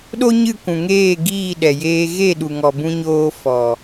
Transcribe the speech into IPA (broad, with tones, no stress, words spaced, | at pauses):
ɗo˦ɲɨ˦˨kʷũ˨ŋeː˦˨ ɡiː˦˨ɗɛ˨jeː˧ ɣe˦˨ ɗu˨ŋɔ˨ bũ˧ɲoː˧ fɔ˨